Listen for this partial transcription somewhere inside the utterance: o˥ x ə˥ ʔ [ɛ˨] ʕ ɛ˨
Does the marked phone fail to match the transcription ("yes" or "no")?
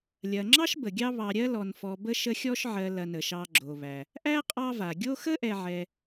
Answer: no